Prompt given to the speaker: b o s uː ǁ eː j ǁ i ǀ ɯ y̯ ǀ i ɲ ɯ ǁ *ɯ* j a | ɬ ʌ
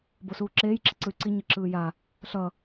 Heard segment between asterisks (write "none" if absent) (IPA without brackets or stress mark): ɯː